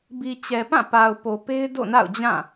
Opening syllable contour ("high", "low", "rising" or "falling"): low